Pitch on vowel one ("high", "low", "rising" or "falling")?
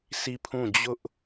falling